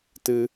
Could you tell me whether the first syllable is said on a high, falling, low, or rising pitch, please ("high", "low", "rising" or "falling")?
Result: low